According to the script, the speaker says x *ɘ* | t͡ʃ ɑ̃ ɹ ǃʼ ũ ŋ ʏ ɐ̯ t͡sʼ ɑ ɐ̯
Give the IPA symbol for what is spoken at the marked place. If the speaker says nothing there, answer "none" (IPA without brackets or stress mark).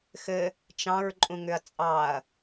ɘ